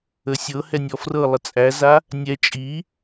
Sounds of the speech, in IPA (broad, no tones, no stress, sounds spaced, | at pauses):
ə sʲ ɤ h ɛ nʲ ɔ f r ɤ lˠ ə t͡sʼ æ z a | nʲ ɛ t͡ʃʼ i